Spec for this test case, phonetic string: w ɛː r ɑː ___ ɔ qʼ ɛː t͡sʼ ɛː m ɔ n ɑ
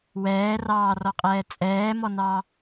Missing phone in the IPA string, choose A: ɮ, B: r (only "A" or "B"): B